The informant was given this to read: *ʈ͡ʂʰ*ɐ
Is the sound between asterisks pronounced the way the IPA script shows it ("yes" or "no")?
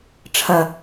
yes